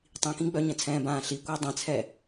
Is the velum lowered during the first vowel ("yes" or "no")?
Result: yes